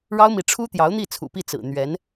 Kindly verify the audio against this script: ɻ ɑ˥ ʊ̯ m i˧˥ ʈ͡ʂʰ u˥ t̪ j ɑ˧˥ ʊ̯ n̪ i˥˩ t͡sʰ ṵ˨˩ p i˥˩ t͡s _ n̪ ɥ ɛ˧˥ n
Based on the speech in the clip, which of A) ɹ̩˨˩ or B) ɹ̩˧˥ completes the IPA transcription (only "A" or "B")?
A